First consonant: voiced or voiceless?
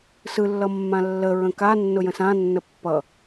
voiceless